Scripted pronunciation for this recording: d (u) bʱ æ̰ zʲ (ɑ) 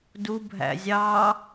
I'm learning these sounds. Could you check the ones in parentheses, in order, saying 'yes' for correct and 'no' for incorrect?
yes, yes

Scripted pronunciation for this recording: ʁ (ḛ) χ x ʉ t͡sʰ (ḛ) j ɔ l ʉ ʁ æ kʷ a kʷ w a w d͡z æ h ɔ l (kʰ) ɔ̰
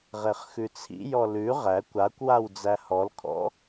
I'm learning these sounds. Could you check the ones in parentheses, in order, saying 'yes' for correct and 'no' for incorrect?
no, no, yes

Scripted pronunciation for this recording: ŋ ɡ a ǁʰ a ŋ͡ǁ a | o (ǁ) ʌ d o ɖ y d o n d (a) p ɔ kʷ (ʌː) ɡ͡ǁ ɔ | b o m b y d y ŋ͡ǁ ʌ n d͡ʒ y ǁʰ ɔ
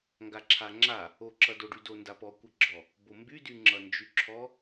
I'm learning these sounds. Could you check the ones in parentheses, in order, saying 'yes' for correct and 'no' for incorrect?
yes, yes, no

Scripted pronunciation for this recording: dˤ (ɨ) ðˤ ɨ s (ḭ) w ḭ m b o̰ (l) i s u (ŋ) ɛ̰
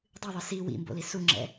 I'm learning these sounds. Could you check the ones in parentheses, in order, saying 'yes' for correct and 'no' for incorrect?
yes, no, yes, no

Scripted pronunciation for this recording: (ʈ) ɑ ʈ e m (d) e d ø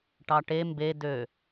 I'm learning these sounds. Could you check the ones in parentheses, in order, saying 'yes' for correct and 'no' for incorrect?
yes, no

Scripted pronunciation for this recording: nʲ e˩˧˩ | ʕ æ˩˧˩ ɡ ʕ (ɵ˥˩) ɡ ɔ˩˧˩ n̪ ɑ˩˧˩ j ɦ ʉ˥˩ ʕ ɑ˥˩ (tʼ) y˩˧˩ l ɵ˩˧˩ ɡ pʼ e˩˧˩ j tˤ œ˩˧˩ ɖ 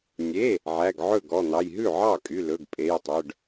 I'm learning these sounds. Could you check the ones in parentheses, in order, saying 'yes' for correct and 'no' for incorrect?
yes, no

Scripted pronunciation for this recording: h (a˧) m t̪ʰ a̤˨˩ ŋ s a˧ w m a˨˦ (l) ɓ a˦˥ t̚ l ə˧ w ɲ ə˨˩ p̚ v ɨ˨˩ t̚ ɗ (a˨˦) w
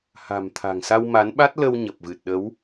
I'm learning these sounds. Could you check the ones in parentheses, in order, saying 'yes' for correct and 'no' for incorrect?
no, no, no

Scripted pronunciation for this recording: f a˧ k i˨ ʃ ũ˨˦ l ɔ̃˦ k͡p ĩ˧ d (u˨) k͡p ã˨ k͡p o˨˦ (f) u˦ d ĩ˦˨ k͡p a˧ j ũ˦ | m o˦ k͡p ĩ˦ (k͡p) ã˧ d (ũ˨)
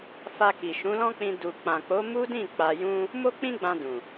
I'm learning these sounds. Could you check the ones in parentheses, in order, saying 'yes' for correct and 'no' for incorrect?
yes, no, no, yes

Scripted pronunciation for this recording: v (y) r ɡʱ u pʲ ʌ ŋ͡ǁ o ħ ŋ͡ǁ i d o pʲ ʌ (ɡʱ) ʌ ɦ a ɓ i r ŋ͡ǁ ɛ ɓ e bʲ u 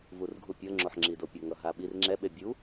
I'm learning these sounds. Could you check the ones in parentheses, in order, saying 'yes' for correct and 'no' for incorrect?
no, no

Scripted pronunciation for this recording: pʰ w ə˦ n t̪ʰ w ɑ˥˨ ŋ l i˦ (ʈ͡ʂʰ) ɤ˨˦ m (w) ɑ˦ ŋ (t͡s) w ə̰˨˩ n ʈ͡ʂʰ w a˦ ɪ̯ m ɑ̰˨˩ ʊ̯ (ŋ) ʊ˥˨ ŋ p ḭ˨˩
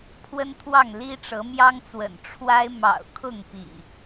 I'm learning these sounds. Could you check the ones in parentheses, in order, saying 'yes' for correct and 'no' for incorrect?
no, no, yes, no

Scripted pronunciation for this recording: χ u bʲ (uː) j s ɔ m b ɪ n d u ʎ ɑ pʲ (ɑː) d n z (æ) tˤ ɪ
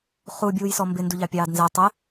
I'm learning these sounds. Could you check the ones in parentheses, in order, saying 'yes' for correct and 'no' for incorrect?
yes, yes, yes

